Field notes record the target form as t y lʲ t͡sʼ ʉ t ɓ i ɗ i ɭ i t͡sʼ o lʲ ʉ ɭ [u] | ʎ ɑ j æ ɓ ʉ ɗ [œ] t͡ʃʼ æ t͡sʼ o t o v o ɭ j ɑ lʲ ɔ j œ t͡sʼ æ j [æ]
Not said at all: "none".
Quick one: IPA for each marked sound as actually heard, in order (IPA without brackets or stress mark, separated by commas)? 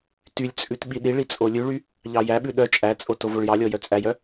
y, œ, œ